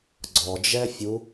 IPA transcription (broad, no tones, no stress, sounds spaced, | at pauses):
ɡ͡ǀ ɔ d͡ʒ ɛ fʲ u